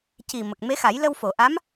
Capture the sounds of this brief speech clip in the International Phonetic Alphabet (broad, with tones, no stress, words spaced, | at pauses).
ci˨˩ mə˨˩k̚me˧˥xa˨˩˦j lə˧wfo˨˩˨ ʔa˧˥m